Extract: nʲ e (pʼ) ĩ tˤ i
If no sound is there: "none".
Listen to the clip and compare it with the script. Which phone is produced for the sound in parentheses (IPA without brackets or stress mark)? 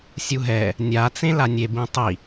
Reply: b